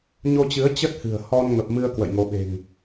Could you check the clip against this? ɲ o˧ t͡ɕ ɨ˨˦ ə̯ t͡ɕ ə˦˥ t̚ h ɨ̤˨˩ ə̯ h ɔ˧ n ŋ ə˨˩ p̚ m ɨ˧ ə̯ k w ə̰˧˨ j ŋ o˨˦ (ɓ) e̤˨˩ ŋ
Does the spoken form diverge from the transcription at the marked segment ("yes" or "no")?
no